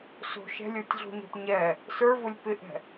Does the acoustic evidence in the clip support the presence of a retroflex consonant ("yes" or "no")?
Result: no